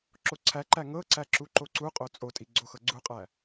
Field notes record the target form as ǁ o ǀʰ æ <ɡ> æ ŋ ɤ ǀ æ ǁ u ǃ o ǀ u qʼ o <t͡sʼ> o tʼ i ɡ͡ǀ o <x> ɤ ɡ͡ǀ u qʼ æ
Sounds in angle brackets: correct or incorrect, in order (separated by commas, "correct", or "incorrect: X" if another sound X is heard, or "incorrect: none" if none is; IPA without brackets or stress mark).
incorrect: ǃ, correct, correct